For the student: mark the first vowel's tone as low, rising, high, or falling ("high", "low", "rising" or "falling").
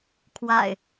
low